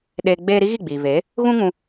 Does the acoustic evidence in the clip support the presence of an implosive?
yes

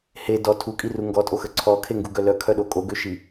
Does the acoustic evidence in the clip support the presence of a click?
yes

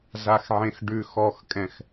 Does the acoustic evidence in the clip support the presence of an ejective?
yes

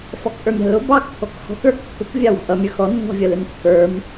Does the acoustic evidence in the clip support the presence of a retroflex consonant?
no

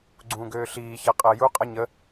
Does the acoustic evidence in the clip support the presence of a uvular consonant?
yes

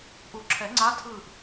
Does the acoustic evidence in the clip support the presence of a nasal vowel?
no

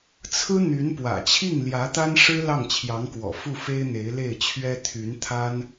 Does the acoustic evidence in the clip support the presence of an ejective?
no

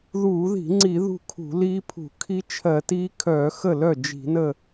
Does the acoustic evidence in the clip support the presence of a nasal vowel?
no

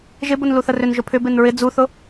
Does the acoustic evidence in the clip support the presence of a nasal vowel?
no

